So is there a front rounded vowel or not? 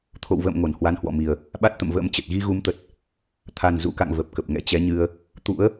no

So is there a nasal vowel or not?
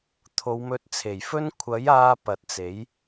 no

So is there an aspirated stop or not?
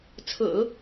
yes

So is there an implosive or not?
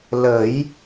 no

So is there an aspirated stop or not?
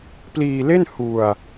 no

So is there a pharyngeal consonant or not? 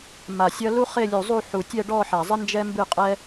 yes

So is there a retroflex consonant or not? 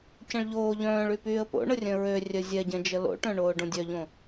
yes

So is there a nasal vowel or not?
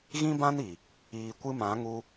yes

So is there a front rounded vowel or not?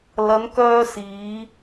yes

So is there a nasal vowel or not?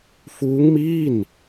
no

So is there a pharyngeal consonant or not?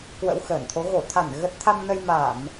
no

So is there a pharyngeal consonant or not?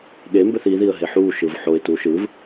yes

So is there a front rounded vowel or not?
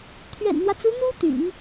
yes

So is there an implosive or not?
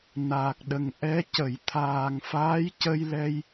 yes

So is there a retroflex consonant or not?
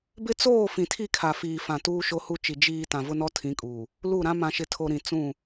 no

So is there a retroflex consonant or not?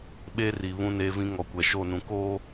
no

